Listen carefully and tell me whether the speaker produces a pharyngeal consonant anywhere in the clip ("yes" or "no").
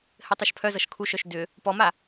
no